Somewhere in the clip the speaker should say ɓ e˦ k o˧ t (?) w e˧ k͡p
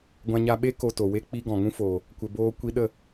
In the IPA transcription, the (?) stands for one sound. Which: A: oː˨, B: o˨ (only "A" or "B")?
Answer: B